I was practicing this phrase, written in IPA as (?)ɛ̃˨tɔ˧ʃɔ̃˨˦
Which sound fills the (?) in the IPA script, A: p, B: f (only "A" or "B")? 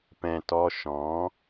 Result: A